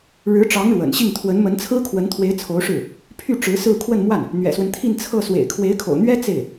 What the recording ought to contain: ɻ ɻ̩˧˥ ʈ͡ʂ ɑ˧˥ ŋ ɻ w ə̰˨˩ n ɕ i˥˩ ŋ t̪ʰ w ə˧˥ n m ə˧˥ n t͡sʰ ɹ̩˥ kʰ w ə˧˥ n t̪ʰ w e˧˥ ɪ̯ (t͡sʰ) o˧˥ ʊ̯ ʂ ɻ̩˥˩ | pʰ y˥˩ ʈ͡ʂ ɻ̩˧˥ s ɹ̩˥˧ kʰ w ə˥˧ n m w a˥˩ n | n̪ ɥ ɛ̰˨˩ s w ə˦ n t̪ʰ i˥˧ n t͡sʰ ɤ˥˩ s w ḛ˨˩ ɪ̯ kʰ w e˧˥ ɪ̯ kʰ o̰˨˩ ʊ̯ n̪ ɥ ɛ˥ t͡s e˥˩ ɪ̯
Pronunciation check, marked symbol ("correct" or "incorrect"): correct